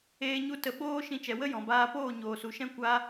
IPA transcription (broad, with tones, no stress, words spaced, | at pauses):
eː˦ɲu˦tə˧ ɓoː˦ ʃĩ˧t͡ʃɛ˨ wə˦jɔ̃˨baː˧poː˦˨ ɲoː˨su˨ʃɛ̃˦ kʷa˦